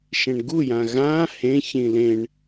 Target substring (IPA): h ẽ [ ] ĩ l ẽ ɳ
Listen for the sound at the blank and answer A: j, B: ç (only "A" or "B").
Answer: B